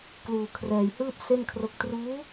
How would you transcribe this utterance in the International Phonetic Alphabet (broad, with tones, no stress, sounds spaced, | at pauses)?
k l uː˧ kʰ r ɛː˧ j h ɯː˥˩ p̚ s e˥˩ n kʰ r o˥˩ k̚ t r uː˦˥